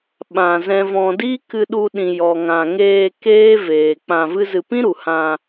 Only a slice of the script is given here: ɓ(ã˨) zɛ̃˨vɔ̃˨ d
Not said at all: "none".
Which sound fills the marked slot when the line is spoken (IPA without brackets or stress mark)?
ã˨